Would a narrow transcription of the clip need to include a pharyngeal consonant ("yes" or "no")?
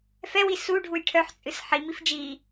yes